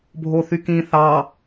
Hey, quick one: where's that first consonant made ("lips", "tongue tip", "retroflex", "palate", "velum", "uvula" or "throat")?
lips